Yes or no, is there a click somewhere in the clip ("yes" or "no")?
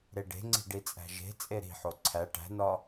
yes